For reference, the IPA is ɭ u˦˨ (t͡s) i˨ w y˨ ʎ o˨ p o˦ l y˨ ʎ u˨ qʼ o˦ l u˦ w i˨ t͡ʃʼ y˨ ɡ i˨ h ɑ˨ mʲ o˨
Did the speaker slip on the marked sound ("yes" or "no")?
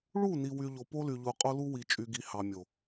yes